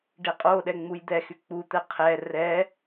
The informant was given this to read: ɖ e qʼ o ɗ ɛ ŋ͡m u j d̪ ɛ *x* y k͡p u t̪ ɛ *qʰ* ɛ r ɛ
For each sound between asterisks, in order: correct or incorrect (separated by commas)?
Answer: correct, correct